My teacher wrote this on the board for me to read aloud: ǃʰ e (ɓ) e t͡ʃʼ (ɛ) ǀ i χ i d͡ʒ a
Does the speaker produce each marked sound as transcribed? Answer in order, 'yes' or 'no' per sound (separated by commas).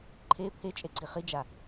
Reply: no, no